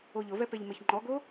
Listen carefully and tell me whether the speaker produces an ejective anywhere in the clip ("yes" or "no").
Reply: no